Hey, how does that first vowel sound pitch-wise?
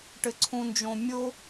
low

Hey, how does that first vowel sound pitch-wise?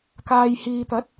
low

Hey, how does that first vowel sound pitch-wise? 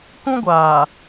high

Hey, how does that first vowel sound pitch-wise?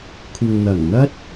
low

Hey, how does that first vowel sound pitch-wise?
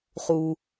low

